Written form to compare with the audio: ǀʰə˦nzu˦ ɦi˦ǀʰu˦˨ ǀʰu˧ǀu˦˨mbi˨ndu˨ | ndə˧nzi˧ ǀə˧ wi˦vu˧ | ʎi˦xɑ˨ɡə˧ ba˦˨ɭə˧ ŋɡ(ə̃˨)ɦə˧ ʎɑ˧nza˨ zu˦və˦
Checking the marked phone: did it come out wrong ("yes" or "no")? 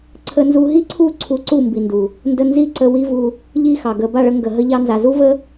yes